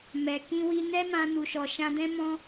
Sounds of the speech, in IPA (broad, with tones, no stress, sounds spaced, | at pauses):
m ɛ˨ k ĩ˧ w i˧ n ɛ˦ m ã˧ n u˨ ʃ ɔ˨ ʃ ã˧ d ɛ̃˦ m ɔ̃˦